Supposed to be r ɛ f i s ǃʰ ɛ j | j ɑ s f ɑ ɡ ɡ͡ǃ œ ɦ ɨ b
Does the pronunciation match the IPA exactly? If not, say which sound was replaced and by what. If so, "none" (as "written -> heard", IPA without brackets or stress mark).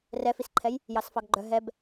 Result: ɨ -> ɛ